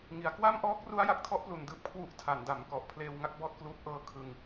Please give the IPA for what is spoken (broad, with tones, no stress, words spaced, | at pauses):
ŋi˩˦a̯ kwa˥˩mʔɔː˦˥k̚ru˦˥a̯ ja˨˩k̚tʰɔ˦˥ʔplu˨˩n dɯː˥˩p̚kʰwu˦˥ʔ tʰa˩˦nda˩˦m kɔ˨˩ʔpʰleː˧wŋa˥˩k̚ bɔː˥˩t̚kluː˦˥p̚ ʔɤː˦˥kʰɯ˧ŋ